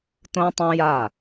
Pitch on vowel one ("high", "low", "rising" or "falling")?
high